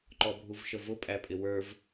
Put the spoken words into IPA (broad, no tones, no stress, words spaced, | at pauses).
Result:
ǃɔbʱuvʃəvʊ pʼæpʼɪwə˞v